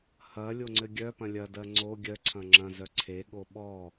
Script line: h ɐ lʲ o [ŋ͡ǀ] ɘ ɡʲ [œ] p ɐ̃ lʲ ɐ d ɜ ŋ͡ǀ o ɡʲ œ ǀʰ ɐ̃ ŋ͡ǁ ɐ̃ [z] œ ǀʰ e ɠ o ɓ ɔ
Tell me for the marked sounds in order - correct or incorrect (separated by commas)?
correct, correct, correct